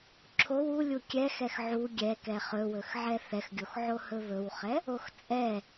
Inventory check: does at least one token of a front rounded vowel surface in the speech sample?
no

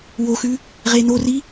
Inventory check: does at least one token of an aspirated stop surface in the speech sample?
no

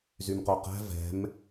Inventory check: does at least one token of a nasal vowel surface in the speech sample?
no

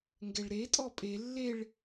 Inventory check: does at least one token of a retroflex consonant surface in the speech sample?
yes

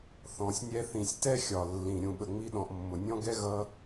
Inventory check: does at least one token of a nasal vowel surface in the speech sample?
yes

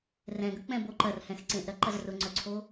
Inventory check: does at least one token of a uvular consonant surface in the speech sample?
no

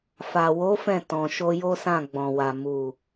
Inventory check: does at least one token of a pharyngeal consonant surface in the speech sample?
no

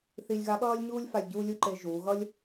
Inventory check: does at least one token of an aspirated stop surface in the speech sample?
no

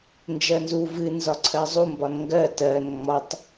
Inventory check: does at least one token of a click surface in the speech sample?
yes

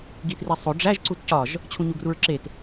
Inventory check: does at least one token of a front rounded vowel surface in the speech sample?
no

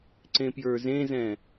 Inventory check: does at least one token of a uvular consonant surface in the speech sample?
no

